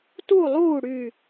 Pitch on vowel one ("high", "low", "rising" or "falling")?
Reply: falling